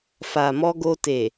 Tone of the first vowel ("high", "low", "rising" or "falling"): low